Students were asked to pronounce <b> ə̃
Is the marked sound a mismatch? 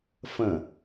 yes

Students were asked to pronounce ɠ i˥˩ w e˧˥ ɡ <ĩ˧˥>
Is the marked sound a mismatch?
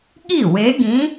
no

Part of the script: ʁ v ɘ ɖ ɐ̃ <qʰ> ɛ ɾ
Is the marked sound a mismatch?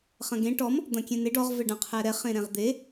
no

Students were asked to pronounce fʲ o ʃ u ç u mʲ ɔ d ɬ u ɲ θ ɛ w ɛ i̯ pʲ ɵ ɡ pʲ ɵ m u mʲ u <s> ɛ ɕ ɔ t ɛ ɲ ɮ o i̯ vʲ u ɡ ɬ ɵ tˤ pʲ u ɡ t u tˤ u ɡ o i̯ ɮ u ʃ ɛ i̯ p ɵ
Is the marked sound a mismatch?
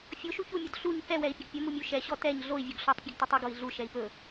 yes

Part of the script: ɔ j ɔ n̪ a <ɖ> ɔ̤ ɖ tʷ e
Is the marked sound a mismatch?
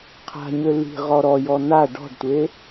no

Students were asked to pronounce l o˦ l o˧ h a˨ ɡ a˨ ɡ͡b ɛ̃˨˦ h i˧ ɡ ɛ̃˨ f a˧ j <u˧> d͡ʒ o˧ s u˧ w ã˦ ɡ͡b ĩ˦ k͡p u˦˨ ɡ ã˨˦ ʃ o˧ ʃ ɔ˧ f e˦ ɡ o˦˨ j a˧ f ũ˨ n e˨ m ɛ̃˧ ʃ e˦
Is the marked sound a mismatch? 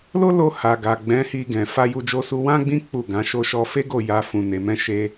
no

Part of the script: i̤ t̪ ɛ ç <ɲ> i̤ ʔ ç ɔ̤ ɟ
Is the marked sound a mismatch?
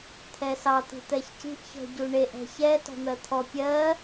yes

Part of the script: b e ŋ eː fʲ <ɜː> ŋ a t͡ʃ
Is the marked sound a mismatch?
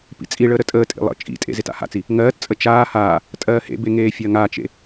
yes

